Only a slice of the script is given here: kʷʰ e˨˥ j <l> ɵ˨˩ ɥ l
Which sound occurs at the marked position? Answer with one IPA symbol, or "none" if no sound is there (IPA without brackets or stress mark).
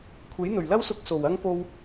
n̪